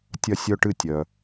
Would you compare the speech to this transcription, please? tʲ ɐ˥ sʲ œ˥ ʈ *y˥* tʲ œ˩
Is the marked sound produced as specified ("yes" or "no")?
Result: no